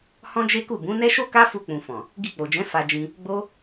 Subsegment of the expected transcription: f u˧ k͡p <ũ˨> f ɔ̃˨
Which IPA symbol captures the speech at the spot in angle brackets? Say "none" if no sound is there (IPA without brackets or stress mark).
ũ˨